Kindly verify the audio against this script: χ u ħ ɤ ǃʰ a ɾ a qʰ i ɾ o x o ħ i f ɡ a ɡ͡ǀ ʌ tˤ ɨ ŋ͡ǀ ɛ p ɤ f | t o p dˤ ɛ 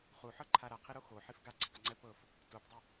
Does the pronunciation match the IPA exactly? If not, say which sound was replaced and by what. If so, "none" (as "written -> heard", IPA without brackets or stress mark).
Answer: none